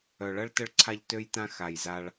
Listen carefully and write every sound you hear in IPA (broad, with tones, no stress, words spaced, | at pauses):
œ˨ɭɐ˧ɭ tə˧ɭǀʰa˧ʎ tø˧jtã˧ xa˨jza˧ɭ